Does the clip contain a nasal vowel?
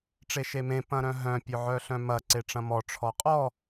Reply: yes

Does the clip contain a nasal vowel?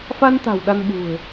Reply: no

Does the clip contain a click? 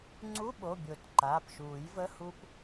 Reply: yes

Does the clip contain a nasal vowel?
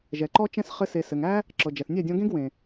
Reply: yes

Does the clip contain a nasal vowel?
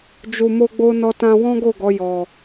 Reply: yes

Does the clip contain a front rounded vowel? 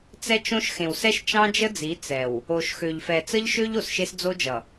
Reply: yes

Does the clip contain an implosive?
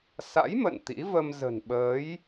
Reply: yes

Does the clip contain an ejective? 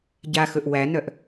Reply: no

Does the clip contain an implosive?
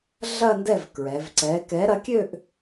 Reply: no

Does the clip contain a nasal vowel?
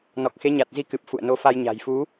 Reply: no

